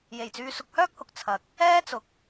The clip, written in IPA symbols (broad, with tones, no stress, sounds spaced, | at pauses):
j e˨˩ j t͡s yː˧ s ʊ˧ k̚ h œː˥ k̚ h ʊ˨ k̚ t͡sʰ ɐ˨ k̚ | ɛː˥ t͡s ʊ˨ k̚